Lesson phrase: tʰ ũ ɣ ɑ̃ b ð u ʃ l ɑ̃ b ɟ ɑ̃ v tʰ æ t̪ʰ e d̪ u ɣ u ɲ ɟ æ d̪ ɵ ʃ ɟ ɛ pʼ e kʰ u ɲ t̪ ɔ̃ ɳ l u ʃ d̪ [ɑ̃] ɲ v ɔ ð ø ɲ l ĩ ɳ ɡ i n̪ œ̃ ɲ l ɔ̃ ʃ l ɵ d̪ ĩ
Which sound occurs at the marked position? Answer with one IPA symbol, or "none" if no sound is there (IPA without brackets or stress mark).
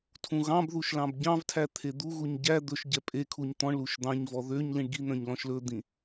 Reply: ɑ̃